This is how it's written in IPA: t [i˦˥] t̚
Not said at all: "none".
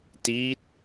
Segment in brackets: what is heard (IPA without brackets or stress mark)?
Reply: i˦˥